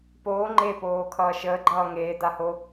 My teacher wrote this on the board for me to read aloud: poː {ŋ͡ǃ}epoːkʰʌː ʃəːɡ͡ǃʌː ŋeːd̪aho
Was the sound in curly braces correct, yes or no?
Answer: yes